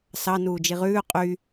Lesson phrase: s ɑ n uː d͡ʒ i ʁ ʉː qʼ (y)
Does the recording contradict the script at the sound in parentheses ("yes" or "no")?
no